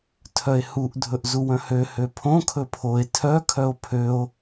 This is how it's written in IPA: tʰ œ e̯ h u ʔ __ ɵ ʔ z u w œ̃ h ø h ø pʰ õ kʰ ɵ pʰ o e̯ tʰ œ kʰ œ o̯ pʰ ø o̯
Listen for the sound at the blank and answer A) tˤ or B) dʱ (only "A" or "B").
B